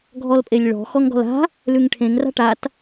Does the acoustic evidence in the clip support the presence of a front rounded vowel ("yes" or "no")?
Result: no